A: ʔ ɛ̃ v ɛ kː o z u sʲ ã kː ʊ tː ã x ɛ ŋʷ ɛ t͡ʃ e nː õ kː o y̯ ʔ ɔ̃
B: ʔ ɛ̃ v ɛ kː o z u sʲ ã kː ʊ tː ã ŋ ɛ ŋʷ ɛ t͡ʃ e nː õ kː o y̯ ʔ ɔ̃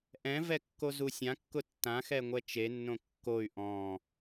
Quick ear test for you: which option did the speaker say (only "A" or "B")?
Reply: A